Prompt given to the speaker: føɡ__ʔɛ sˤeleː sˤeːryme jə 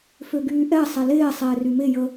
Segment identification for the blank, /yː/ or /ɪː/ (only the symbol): yː